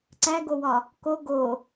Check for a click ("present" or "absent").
present